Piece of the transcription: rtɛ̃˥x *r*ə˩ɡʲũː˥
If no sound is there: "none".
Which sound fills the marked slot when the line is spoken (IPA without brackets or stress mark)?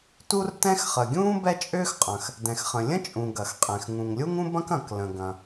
χ